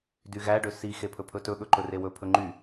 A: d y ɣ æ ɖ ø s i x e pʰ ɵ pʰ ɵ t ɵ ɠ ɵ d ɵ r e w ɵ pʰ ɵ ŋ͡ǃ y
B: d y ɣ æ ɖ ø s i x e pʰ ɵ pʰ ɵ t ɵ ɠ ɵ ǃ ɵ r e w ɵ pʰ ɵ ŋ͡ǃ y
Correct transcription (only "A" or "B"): B